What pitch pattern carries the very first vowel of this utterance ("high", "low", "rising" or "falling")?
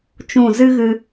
falling